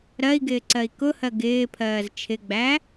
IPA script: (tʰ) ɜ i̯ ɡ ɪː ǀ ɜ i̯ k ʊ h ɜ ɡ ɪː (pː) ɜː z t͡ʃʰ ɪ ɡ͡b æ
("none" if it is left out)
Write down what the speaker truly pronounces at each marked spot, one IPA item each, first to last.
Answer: ɾ, pʰ

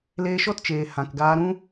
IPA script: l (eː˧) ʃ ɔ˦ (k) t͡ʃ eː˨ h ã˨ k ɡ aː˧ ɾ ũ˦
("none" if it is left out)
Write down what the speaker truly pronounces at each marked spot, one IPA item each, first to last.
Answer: eː˧, t

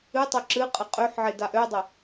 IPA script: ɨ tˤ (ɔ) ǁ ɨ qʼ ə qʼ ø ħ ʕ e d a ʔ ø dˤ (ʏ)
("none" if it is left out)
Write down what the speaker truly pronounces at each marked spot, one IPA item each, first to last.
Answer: ɵ, ə

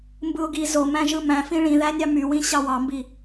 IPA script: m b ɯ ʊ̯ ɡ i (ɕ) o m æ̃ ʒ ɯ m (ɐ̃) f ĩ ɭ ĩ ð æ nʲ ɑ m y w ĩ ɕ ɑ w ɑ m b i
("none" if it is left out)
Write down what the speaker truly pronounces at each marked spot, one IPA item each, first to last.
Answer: z, æ̃

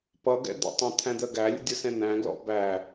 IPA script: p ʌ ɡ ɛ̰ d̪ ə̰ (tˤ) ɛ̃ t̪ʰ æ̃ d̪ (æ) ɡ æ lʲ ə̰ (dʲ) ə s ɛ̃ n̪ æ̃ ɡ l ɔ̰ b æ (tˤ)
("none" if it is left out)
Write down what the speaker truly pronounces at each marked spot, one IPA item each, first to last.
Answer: tˤ, ɜ, dʲ, none

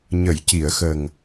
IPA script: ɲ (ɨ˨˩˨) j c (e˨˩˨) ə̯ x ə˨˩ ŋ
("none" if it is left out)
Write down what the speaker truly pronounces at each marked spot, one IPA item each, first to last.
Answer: ə˨˩˨, i˨˩˨

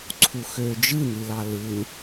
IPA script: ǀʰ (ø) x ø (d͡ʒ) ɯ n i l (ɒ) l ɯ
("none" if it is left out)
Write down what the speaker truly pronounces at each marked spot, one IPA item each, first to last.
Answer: u, d͡ʒ, ɑ

